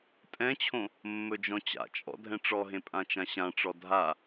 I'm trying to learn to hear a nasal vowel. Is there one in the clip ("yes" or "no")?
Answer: yes